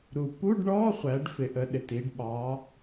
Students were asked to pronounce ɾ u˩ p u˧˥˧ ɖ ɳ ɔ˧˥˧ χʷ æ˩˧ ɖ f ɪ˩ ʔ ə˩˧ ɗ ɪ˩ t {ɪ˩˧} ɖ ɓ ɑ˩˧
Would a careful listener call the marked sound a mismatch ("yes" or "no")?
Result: yes